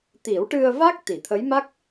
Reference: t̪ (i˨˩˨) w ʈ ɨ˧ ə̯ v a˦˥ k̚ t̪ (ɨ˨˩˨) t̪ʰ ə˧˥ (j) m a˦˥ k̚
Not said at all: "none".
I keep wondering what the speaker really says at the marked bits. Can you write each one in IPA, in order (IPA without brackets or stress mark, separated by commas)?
i˨˩˦, i˨˩˨, j